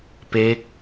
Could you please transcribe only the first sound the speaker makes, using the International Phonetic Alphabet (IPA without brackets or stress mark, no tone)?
p